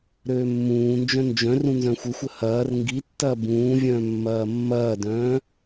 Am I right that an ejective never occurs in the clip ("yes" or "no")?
yes